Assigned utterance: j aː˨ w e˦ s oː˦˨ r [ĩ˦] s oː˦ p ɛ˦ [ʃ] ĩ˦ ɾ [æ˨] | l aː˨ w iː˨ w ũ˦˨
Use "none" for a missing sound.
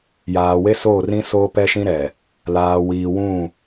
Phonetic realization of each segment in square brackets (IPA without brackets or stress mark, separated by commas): ĩ˦, ʃ, ɛ˨